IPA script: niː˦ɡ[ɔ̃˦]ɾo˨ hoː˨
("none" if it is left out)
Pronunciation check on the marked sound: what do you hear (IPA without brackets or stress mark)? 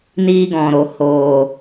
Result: ɔ̃˨